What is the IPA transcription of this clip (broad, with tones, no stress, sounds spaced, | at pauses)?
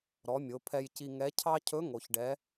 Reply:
ɾ ɔ˩˧ mʲ o˩˧ pʰ ɛ˧ j c i˧ ŋ ɛ˧˥ cʰ ɑ˥ cʰ ɵ˧˥ ŋ o˩ ç ɖ ɛ˩˧